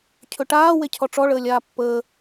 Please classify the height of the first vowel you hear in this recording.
mid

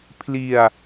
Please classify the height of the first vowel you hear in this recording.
high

